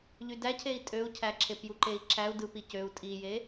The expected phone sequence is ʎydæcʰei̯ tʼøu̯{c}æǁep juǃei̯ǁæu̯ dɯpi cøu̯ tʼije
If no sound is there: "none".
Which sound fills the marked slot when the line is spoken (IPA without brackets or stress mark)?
cʰ